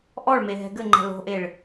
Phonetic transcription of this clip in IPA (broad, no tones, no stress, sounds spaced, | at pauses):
ʔ ɔ ɭ m e ɦ ɛ̤ ɡ ɘ ŋ͡ǃ ɛ̤ l o̤ ʔ e ɭ